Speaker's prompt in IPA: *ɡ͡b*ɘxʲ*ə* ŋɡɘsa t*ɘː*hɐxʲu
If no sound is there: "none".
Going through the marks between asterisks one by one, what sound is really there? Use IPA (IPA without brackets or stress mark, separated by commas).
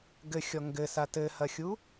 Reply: ɡ, ɔ, ɘ